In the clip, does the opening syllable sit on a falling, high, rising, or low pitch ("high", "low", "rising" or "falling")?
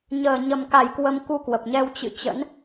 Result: low